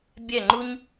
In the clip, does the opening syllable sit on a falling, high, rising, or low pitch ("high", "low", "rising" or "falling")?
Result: falling